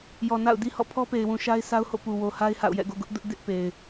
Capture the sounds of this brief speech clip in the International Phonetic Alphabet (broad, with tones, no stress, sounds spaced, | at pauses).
j ɔ˨ n a̰˦˨ ʊ̯ d i˦ h ɔ̰˦˨ pʰ ɔ˦ p e˨ ɪ̯ w ũ˨ ʃ a˦ ɪ̯ s a˦ ʊ̯ h o̰˦˨ p u˨ w o˨ h a˦ ɪ̯ h a̰˦˨ ʊ̯ j ɛ̰˦˨ ɡ o̰˦˨ ɡ ʊ˦ ʔ d ʊ˦ ʔ d ɪ˦ ʔ p e˨ ɪ̯